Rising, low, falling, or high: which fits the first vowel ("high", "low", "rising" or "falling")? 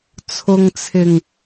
low